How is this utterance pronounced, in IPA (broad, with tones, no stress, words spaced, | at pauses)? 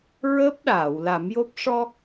ɹəː˦˥p̚ɗaː˨˩˨w la˨˩˦mjo˦˥p̚ ʂɔ˧